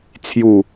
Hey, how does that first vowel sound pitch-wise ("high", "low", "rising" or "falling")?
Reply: low